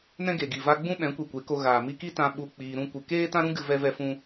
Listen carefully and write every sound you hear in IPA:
n ɛ̃˦ ɡ e˨ ɡ i˨ v a˧ ɡ͡b ũ˦ ɓ ɛ̃˨˦ kʷ i˨ kʷ e˨˦ k o˧ ɣ aː˨ m i˧ k i˦ t ã˧ ɓ u˦ k͡p iː˧ ɾ ũ˦ kʷ ɨ˨ k eː˦ t ã˦ ɾ ũ˦ ɡ ɨ˦ v ɛ˦ v ɛ˦ f ũ˦

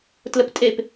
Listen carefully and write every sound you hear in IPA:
t l ə p tʼ e p

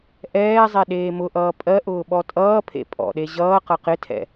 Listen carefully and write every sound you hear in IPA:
ʔ ɛː zˤ e ɗ eː m ʊ ʔ ʌː pʼ ɜ ʔ ʊː ɓ ɔ tʼ ʌː pʰ ḛ pʼ ɔ̰ ɗ e ʑ ʌː q ʌ q ɪ tʰ ɛ̰

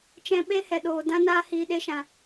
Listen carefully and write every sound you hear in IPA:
t͡ʃ ɛ̃˧ ɓ e˧ h ɛ˨ ɗ oː˨ d ã˦ n aː˦ h iː˧ ɗ e˦ ʃ ã˧

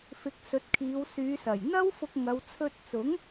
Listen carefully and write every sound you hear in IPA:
f ɪ˨˥ k̚ s ɵ˨˥ t̚ kʰ iː˨˧ w s yː˨˧ s ɐ˨˩ j n̪ ɐ˥ w f ʊ˧ k̚ ŋ ɐ˨˧ w t͡sʰ ɵ˧ t̚ t͡s ʊ˨˥ ŋ

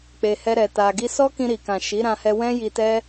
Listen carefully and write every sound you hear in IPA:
k͡p e˧ h ɛ˦ ɾ ɛ˧ t a˧ ɡ i˧ s ɔ˦ k ĩ˧ ɾ i˨ k ã˨ ʃ i˨˦ ɾ ã˧ h ɛ˧ w ɛ̃˦ j i˧ t ɛ˦

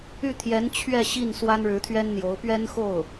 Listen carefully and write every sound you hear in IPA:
y˥˩ t̪ʰ j ɛ˧˥ n t͡ɕʰ ɥ ɛ˥˧ ɕ i˥˩ n s w a˥ n ɻ ɻ̩˧˥ t̪ʰ ɥ ɛ˥ n n̪ j o˧˥ ʊ̯ p ɥ ɛ˥ n x o˥˩ ʊ̯

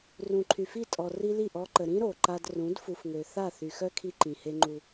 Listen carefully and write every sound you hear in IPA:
r ũ˨ ǃʰ y˨ f i˦˨ tʼ ɔ˨ r i˦ l i˦˨ ʔ ɔ˦ ǃ ə˨ ɾ ĩ˦ ɾ o˨ ǃ a˦ d r ũ˨˦ d f u˨ f ŋ ø˨ θ a˦˨ θ y˨ x œ˦ kʰ i˦ ǃ ĩ˨ h e˦ ŋ͡ǃ u˦

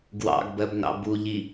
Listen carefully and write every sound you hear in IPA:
ɡ w ɑ̰ ɡ b ɜ b n ɑ̰ b u ʎ i

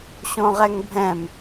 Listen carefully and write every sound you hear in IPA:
ɕ õ ʁ ɛ ŋ bʱ ɛ̃ m

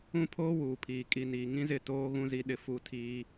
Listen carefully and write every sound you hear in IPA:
ũ˦ pʰ oː˦ w uː˨ pʰ iː˨ kʼ i˨ n iː˨ ŋ ĩ˦ z ɪ˦˨ t oː˦ ɣ ũ˦ z i˦ ɗ ɪ˦ f u˦ tʰ iː˦

